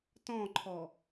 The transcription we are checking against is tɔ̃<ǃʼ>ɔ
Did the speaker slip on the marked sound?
yes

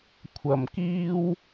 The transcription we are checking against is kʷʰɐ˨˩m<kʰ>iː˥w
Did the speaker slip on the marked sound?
yes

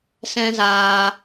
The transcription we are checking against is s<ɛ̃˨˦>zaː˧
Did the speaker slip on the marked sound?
yes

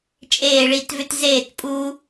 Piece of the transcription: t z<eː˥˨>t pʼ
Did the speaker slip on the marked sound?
no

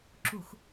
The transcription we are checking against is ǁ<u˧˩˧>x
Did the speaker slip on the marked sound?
no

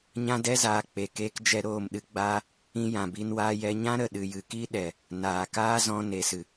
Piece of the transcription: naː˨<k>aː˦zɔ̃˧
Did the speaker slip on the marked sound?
no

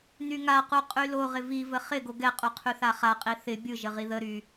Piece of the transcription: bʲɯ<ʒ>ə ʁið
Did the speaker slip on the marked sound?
no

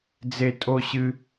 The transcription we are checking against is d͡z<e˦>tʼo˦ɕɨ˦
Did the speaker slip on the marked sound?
no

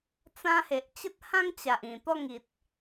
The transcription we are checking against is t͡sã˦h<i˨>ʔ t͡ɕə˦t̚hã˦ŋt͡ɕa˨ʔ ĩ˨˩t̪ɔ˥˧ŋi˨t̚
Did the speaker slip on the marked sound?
yes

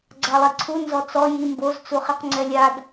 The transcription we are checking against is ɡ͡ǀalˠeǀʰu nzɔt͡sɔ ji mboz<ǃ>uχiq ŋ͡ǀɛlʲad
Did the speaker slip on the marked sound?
yes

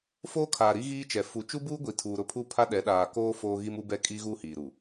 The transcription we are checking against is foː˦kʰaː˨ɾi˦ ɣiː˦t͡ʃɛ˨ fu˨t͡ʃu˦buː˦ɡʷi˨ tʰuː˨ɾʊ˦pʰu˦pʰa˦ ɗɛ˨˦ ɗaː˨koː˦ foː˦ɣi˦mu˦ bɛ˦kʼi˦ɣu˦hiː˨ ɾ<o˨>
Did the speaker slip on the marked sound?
yes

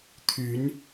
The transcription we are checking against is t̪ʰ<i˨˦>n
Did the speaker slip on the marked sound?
yes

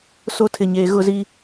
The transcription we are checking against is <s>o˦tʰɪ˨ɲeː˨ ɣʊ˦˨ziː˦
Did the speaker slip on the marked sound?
no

